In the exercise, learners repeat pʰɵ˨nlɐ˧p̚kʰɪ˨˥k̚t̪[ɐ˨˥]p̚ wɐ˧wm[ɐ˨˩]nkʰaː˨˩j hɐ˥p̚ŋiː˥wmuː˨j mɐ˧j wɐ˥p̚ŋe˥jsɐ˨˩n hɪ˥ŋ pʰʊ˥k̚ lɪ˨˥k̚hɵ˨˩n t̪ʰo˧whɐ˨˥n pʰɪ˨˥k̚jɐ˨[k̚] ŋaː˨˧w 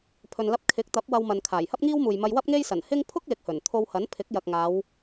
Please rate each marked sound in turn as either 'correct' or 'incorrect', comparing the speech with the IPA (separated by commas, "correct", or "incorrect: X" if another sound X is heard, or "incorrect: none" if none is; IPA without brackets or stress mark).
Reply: correct, incorrect: ɐ˨, correct